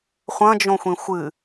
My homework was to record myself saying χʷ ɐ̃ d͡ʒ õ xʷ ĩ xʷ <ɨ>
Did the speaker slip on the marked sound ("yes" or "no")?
no